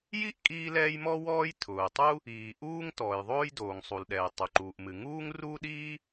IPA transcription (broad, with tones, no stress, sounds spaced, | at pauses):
j i˥ ʔ kʼ iː˥ l ɛː˥ j m ɔ˥ w ɔː˥ j tʰ ʊː˩ tˤ u˥ | iː˩ ʔ uː˥ ŋ t ɔː˩ j ðˤ oː˥ j d oː˩ ŋ sˤ u˩ l ɗ ɛː˩ tˤ o˩ ǃ uː˩ ʔ m ɨ˩ ŋ uː˥ ŋ r uː˥ ɗ iː˥